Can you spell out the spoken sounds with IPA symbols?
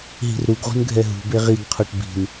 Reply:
ɦi̤rɾuɡʁṳn ɡʱɛɦṳbe ʁiɡqʰoʈ bi̤n

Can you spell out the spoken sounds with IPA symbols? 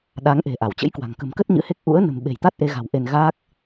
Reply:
ɗa˨˦ŋ ʔe̤˨˩ʔa˧˩wt͡ɕə̰˧˥jkwa̤˨˩ŋ kə̤˨˩mkə˦˥t̚ ɲɨ̰˧˥he˦˥k̚ ʔṵ˧˥ə̯ nə̤˨˩m ɓe̤˨˩jt̪a˦˥t̚ʔe˧ɣa̤˨˩w ʔe˧nɣaː˦˥k̚

